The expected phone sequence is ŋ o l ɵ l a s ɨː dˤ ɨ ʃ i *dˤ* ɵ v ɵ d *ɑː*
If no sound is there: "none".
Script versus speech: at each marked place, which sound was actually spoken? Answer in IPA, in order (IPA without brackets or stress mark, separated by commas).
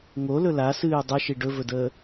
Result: ɖ, əː